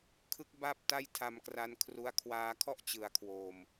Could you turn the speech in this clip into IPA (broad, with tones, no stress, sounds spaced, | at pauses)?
kʰ ɯ˦˥ k̚ b a˥˩ p̚ t a˥˩ j tʰ a˧ m k r a˦˥ n kʰ r u˦˥ a̯ kʰ w aː˧ kʰ ɔ˥˩ ʔ t͡ɕ ɯ˩˦ a̯ kʰ w oː˨˩ m